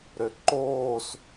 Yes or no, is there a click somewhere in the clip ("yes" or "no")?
yes